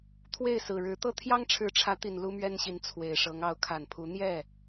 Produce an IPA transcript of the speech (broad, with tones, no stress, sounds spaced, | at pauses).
t̪ʰ w e˥˩ ɪ̯ s ɹ̩˨˩ ɻ ɻ̩˧˥ t̪ ɤ˥ t̪ʰ j ɑ˥ ŋ ʈ͡ʂʰ ɻ̩˧˥ ʈ͡ʂʰ ä˧˥ t̪ i˨˩ n l u˥ m ɥ ɛ˥ n ɕ i˧˥ n t͡sʰ w e˨˩ ɪ̯ ʂ ɤ˧˥ ŋ ɑ˧˥ ʊ̯ kʰ a˨˩ n pʰ u˧˥ n̪ j ɛ˥˩